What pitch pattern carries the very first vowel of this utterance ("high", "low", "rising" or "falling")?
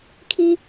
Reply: high